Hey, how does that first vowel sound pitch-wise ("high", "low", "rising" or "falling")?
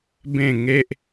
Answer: falling